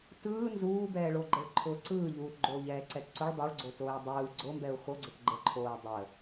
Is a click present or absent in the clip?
present